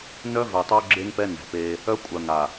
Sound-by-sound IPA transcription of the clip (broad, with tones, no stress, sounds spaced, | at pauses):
n œ˦ v ø˨ tˤ ø˦ ɡ͡ǁ e˦ ŋ p ɛ˦ n ɛ̤˨ p e˦ | œ˦ kʷʼ œ˨ ŋ a˨